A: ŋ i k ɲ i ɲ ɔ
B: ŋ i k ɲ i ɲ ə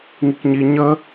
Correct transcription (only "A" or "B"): B